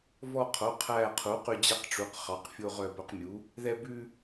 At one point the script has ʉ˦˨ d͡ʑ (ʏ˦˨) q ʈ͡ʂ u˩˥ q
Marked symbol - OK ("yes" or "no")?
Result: no